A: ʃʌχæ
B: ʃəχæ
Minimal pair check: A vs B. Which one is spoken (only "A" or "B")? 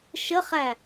B